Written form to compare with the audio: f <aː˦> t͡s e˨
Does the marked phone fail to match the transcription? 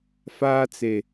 no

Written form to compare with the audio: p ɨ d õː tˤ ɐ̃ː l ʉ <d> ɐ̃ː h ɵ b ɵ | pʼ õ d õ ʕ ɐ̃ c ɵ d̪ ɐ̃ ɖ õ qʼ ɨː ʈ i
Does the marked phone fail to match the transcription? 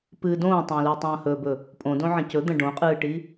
yes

